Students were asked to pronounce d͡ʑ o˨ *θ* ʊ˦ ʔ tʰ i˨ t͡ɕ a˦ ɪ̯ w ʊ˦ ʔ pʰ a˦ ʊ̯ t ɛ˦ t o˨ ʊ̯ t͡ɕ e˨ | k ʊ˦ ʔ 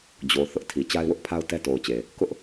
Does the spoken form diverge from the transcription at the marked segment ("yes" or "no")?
no